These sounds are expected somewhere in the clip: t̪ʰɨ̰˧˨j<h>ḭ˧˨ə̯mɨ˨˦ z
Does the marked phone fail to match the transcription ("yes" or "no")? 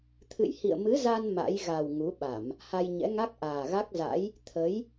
no